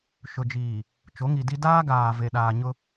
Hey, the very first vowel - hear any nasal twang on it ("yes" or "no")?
no